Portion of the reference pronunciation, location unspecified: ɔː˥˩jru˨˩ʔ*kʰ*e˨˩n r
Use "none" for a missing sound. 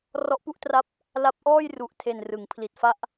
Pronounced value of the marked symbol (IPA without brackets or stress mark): tʰ